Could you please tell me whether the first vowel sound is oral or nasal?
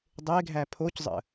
oral